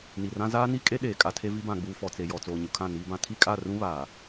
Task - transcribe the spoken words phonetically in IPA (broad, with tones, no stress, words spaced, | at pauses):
ni˨rã˦ zaː˦ni˦kʼe˦ ɗeː˨kʼa˦tʰe˦vi˦ bã˨ɡ͡buː˨ fɔ˨t͡se˨jɔ˨ t͡soː˨ɲu˨kʰã˦˨ niː˦bã˦ tʰi˦kʼa˦˨rũ˦βaː˨